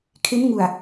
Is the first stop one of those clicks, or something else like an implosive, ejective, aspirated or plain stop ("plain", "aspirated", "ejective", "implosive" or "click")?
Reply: aspirated